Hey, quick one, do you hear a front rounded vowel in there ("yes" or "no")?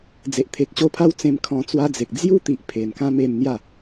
no